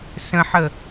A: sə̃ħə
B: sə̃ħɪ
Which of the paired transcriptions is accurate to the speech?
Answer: A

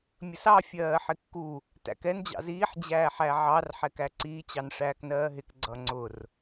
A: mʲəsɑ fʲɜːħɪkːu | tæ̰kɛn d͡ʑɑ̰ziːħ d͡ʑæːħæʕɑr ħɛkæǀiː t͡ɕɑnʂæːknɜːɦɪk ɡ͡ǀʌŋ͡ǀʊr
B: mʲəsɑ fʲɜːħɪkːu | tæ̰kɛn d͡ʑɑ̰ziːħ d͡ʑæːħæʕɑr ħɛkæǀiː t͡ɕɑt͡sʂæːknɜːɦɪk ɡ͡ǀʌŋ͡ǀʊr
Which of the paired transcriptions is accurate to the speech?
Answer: A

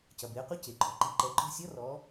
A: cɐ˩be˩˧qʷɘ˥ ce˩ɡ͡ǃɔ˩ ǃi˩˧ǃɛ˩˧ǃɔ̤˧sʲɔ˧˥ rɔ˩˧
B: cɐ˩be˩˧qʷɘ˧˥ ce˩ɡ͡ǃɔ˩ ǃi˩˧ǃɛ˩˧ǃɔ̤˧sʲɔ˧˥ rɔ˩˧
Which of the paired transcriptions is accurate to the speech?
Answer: B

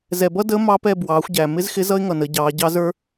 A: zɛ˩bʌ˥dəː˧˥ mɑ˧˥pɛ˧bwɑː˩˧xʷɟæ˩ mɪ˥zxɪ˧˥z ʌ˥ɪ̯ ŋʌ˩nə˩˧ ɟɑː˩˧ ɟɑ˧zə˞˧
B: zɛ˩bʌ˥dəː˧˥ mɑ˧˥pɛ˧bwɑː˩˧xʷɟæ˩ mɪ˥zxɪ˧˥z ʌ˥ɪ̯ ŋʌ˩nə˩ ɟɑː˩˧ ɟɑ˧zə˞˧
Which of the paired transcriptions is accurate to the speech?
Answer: A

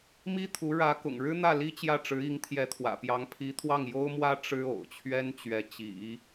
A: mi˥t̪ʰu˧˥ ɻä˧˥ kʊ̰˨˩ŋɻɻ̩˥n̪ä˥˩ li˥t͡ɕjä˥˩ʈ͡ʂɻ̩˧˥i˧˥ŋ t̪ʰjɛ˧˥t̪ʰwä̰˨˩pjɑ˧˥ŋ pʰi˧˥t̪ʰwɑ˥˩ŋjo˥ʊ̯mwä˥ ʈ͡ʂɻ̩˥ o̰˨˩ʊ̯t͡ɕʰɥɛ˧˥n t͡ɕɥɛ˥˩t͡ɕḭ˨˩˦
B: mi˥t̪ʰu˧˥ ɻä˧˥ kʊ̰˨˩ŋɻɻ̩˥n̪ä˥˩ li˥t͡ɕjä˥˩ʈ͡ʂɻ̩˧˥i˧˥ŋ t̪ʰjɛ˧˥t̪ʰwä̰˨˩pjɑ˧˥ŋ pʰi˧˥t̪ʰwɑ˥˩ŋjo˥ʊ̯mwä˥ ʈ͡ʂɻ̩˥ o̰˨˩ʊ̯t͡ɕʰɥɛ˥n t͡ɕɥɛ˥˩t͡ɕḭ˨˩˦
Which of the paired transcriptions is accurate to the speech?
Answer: B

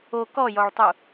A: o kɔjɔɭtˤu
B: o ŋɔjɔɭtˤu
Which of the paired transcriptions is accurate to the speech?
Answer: A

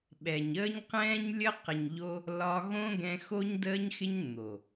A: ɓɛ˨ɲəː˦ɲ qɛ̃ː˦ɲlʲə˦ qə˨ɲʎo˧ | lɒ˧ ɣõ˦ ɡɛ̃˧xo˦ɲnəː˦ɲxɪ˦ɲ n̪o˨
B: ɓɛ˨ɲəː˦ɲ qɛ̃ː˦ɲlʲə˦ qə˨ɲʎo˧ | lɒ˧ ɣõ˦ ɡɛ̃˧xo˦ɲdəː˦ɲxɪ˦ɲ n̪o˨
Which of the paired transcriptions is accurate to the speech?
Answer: B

